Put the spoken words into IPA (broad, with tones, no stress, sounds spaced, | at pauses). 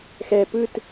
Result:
x ɛ˧ p ɯ˥˧ t